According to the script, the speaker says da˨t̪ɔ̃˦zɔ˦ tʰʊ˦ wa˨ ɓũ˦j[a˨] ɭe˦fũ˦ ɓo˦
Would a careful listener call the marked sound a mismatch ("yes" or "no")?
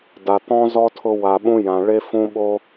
yes